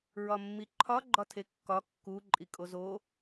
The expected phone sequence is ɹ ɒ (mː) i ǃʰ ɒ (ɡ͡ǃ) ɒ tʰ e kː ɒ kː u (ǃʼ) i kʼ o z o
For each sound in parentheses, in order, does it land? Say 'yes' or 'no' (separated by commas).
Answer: yes, yes, yes